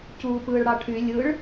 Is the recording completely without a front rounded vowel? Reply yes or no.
no